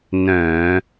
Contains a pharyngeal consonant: no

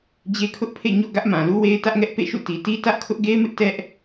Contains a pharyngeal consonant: no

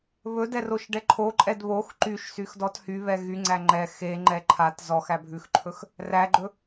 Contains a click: yes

